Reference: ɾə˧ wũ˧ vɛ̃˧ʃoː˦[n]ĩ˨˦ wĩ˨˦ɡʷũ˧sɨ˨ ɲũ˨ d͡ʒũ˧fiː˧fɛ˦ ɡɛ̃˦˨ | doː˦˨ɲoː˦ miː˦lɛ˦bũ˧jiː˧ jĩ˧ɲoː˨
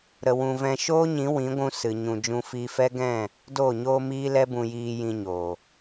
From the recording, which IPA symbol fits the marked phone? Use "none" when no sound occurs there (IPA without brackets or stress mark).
ɲ